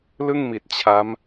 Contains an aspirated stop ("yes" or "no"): yes